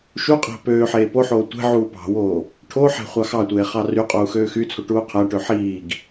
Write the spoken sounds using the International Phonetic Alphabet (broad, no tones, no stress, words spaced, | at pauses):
ʃuqʼæ̤ pøː ħeːpoħoː tʷe̤ ʕuːpɑ̤woː | ʈʰoħæ̤ χʷɑxɑtʷeː χɑryqʼuː xøːxyt͡sʰo ʈuːqʰæʈø ħiːɡ